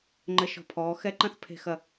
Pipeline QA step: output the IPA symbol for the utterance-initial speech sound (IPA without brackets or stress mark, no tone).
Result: ŋ͡ǃ